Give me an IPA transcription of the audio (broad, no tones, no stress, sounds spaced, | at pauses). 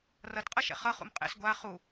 r ʌ t qʼ ʌ ʃ ɛ̰ χ ʌ χ ṵ m qʼ ɛ̰ s ɡʷ a χ u